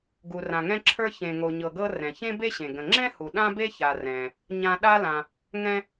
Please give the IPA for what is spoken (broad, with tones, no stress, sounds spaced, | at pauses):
ɡ u˩ r ã˩ ŋ ɛ̃˧ ǁʰ ə˞˧ ç ẽ˩ ŋ o˩ ɲ ɤ˩ ɡ ɤ˧ r ɛ̃˩ ç ẽ˥ b e˥ ɕ ẽ˩ ɡ ə̃˩ ŋ͡ǁ ɛ̃˥ h u˩ ɗ ã˥ b e˥ ç a˩ r ɛ̃˩ | ɲ ã˧ ɗ a˥ l ã˩ | ŋ ɛ̃˧